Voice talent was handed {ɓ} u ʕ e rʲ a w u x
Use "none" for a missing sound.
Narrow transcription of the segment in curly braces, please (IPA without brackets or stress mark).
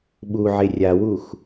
ɓ